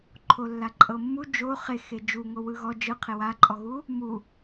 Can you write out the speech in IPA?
ǃʰolːaǃʼɤmːu d͡ʒo χexe d͡ʒuŋo wɯɣɔ d͡ʒɯqʰe waǃʼɔɣu | mu

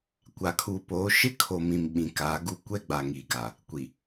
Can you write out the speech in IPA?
kʷa˨kʰuː˨poː˨˦ ʃɪ˦kʰo˨mĩ˨m ɓĩ˨kaː˨˦ɡu˦ kʷɛ˦ ɡ͡ba˨ŋiː˨ɡa˨ | kʷi˨

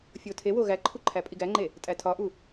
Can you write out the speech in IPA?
fʲotʰewo ɣæǃʰu ǃʰæpʼiɡæŋ͡ǃe | tʼætʰɒʔu

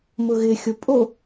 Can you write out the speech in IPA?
mʊɣɪxʲo pʼo

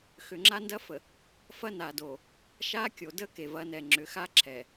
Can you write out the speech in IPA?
xʏ˨ŋ͡ǁa˦ndɐ˦fə˨ | fɐ˦na˨do˨ | ʃa˦kʲo˨ də˦ ke˨vɐ˨˦ nɛ˨ŋ͡ǁʏ˨˦xa˦ ǁʰɛ˨

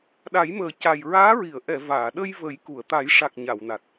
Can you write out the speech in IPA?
ɗa˨˩˦jməː˨˩ ca˨˩jɹaː˧˥ɹi˨˩˨ə̯ ʔɛ˨˩˨ vaː˨˩˨ ɗə˧j və˨˩˦jku˨˩˨ə̯ t̪a˨˩˦jʂa˨˩k̚ ɲa˨˩˨wna˨˩t̚

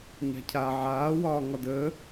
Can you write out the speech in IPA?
ɲa̤cʰa ʕaːwɒː ŋɒdəː

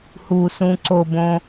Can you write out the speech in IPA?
husũ ǀobõ

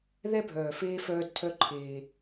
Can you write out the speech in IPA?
ðɛ˦bʱœː˨feː˦ fœː˦dtʰœ˦ ǃʰeː˦

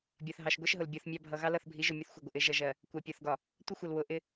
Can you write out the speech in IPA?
bʲɒ˨θɦɑ˨ʃɡʷɛ˦ʃɦʊ˨l bʲɒ˦θmʲɑ˦ bʱʌ˨ ɣɑ˦lʌ˦˨θbʱi˨˦ ʒʊ˨ mʲʊ˦θxʷɜ˨ ɡʷɪ˨ʔɪ˨˦ ʒʌ˨ʒɜ˨ | kʷæ˨pʲɒ˨θɡɒ˨ | tʷə˦xʷʌ˨l wʊ˨ ʔɪ˦

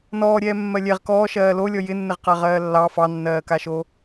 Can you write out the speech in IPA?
nɔːɾʲɛː mːɜlʲɛʁ kɔː ʃɜːlolʲɔ jɪnːɪʁqa ʁɜːlːɑ fɑnːɜːkaʃo

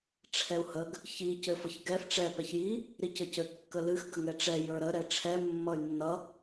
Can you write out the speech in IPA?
ʈ͡ʂʰɛu̯həɡ | çi cɘfʌçɡɛf ʈ͡ʂɛ pɛçji | ɾicɘcɘ kːəlɨx ɡəŋɛʈ͡ʂɛ jə˞ɾə ɾɛʈ͡ʂʰɛ mːʌy̯nːʌ

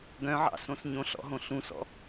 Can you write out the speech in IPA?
ɡœ̃ʕɑ̰sõs ɲõɬɔ̰ɦõ ɬũsɔ̰

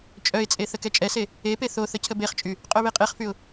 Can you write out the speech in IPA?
t͡ʃʼœɪ̯t͡sʼe θəkɛt͡ʃʼɛse | epe θoθə cʰəbeχt͡ʃʼy | qʼœβeqʼeχfyʊ̯

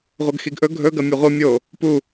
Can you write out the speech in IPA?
ʁʷɐɡxiɡʔɵ ɡʱɵɡɐ mʲɨʁʷɨ mʲo | pu

